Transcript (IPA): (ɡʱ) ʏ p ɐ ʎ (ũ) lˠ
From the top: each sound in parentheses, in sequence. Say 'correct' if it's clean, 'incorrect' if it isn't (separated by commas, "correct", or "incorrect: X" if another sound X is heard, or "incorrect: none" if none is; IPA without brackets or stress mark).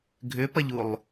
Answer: correct, incorrect: u